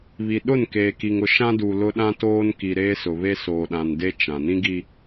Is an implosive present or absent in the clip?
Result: present